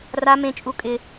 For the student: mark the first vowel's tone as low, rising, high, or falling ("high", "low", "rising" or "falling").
high